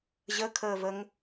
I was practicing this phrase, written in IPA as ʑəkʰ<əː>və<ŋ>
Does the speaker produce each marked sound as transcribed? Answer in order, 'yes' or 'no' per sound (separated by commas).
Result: yes, yes